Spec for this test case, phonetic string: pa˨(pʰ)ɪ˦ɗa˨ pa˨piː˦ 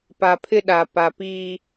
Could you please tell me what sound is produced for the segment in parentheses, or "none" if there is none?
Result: pʰ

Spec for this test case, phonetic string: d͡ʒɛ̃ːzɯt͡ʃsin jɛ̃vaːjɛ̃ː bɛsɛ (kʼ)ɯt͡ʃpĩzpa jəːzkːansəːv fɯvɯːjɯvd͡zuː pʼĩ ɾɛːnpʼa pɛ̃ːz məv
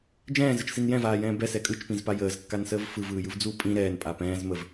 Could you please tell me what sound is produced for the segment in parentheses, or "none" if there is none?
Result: kʼ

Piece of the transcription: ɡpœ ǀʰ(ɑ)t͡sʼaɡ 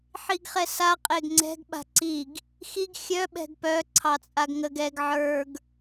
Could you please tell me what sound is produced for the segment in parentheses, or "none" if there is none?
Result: ɑ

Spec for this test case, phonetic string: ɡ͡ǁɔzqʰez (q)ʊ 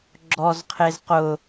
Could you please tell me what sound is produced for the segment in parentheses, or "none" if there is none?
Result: q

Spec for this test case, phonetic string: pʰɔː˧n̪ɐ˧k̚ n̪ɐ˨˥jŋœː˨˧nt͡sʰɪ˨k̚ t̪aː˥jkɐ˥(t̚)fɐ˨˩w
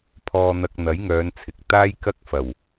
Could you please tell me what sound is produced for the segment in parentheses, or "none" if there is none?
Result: k̚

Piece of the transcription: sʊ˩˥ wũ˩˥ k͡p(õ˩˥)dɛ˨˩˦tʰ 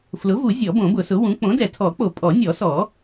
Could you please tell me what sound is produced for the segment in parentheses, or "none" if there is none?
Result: õ˩˥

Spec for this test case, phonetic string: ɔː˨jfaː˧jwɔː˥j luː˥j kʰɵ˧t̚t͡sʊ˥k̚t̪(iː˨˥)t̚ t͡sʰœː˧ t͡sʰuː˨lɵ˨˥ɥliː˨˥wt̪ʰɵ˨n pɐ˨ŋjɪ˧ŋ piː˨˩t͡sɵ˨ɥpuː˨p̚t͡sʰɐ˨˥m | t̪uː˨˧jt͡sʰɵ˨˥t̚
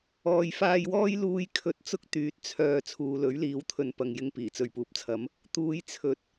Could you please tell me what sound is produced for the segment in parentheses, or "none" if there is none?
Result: yː˨˥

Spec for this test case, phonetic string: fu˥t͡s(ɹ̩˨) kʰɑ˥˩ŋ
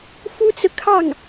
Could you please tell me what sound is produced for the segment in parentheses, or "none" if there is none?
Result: ɹ̩˨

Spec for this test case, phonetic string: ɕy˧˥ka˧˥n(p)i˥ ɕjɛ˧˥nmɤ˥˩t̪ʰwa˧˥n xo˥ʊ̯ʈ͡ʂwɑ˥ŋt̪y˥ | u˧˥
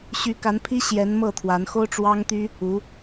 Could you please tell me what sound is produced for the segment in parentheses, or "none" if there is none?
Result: pʰ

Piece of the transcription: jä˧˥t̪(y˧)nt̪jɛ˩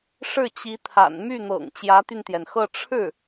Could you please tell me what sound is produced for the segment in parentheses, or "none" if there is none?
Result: y˧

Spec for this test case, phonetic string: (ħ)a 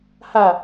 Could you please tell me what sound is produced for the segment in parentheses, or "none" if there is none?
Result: h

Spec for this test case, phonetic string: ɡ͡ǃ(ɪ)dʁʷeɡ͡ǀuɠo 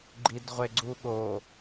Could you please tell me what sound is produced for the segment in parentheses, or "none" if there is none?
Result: i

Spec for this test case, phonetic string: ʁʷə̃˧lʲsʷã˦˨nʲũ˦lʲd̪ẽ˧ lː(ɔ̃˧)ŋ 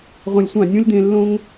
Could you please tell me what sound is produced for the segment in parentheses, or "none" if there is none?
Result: õ˧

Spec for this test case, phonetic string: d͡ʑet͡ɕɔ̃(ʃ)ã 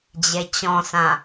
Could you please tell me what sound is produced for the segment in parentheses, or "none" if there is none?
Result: s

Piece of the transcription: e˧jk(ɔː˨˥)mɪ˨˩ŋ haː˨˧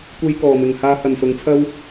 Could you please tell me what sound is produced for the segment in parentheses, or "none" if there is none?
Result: ɔː˨˩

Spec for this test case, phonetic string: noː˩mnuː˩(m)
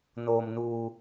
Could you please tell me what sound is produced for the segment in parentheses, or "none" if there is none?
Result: none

